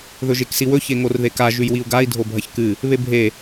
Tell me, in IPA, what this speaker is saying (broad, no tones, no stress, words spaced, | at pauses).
ðɵʒeksiwɵ çeŋorðeka ʒʉjwiu̯ɡai̯ dʱobʱɐçkɨ | βebʱe